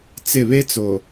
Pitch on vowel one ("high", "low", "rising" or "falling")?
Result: falling